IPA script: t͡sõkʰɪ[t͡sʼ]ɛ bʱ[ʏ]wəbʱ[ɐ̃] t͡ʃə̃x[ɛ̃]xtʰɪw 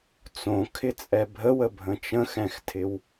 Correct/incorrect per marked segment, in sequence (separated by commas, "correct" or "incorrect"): correct, incorrect, incorrect, correct